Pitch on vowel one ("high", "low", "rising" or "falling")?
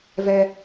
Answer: low